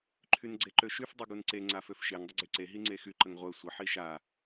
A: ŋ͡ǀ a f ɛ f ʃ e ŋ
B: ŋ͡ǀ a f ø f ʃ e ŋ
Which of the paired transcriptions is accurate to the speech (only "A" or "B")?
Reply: B